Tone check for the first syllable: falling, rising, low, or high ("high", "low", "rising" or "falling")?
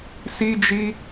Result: high